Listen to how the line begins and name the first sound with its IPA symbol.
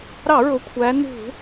ɾ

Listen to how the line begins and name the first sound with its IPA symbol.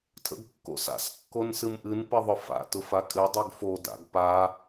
tʰ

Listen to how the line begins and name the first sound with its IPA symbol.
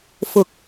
f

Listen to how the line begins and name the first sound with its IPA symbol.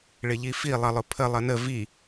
ɭ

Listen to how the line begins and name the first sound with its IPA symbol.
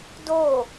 d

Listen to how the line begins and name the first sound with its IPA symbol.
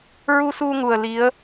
ɹ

